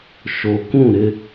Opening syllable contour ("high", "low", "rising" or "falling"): low